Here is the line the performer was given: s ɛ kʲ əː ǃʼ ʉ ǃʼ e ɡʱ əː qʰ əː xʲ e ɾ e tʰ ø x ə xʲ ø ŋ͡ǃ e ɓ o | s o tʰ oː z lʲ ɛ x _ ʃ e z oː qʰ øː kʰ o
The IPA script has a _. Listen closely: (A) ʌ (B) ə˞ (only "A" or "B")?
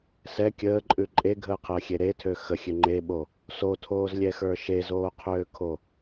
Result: B